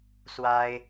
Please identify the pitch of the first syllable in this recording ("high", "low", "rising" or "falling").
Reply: high